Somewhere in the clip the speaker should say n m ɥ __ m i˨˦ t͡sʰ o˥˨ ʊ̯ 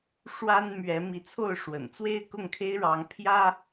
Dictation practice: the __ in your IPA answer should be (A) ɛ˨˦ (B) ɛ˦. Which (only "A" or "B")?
A